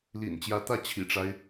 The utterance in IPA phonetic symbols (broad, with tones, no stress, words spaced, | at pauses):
lḭ˨˩nt͡ɕjä˧˥t̪ä˥˩ t͡ɕʰḭ˨˩ʈ͡ʂa˦ɪ̯